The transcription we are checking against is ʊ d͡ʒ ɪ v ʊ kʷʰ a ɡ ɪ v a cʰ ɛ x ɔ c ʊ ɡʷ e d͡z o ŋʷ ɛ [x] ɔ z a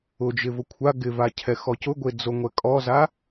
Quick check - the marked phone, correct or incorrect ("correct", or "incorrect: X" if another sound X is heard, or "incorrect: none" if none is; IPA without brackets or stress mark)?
incorrect: kʼ